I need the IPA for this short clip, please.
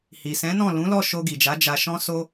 hi˨ sɛ̃˨˦nɔ̃˦˨ lũ˨˦lɔ˦˨ ʃo˧ ɡi˨d͡ʒa˨˦ d͡ʒa˧ʃɔ̃˦ so˦

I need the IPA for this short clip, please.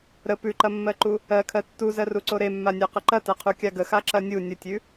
ɾə pʉǃɐmːɜǃu | ɜkʰɜ tːuzɜruǀo ɾemːanʲa qəǃɐtɐqʰu kʲaɡəxa ǁɐnʲu nʲətʲʉ

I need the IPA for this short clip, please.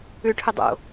ʉʈʰɵ dˤo̰

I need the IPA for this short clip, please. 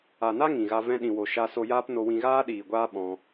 a˨na˦ ŋĩ˨ɣa˧ vɛ̃˧ ɗĩ˨wo˨ ʃa˧so˧jaː˦pno˧ wĩ˧ɣaː˦ɗiː˨ɡʷaː˦ ɓɔ̃˧

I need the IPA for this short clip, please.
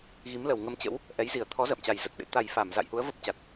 ɣi˨˦mlə˨˩w ŋə˧mt͡ɕə̰˧˥w | ʔɛ˨˦jzi˧˩ə̯ t̪ʰɔ˨˦ zə̰ː˧˨mt͡ɕa˨˩jzə˨˩t̚ɓḛ˧˥ t̪a˨˩j fa˧˩m za̰˧˨jhu˨˦ə̯ və˦˥p̚t͡ɕa˨˩t̚

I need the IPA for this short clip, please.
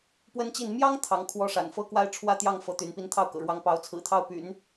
pwə˥nt͡ɕi˥˩n mjɑ˥ŋ t̪ʰɑ˧˥ŋ kʰwɔ˥ʂa̰˨˩n fɤ˥kwa˥ɪ̯ ʈ͡ʂʰwä˥˧t̪jɑ˥˩ŋ fɤ˧˥t̪y˧˥n pi˧˥nt̪ʰɑ˥˩ʊ̯kɤ̰˨˩ɻwɑ˧˥ŋ pɑ˧˥ʊ̯t͡sʰɹ̩˨˩t̪ʰɑ˥˩ʊ̯py̰˨˩˦n

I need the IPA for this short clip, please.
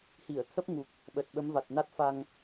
hi˧˩ə̯t̪ʰə˦˥p̚ŋu˨˩k̚ | ɓə˨˩t̚ ɓə˨˦mva˨˩t̚ na˦˥t̚fa˧ŋ

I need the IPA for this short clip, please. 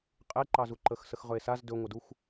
qʼeǃɑzuǃəx səxʁɵe̯saz dɵŋʷəduxʷ

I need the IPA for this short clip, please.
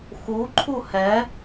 xuǃʰu hɛ

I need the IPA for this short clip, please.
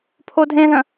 pʰodʱẽðə̃

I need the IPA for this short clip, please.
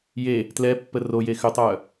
je | tlɛ pːəroje xʏtˤœ

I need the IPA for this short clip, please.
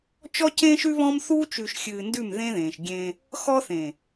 t͡ʃɔ˦cẽ˦ʃʉ˦ βɔ̃˦m θu˦t͡ʃʉ˨ʃxʲɨː˨ndʉ˦˨m ðẽ˦ðẽː˨ʃɡʲẽ˦ | xɔ˦θẽ˨

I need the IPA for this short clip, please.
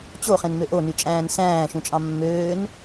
t͡ɕoχẽnmø ʔonyt͡ʃʼæ̃ːn sæ̃ːʃũt͡ʃʼɑ̃ mːøːn

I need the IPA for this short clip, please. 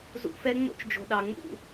zṵ˧fɛ˦ ŋ͡mo̰˦t͡ʃd͡ʒo̤˨ɗɑ˨ŋ͡mṵ˦˨

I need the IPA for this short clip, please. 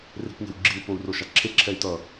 re̤pŋɛ̤wɡ͡ǁiu̯ pou̯roʃaǁʰe ǁʰɛy̯tʌ

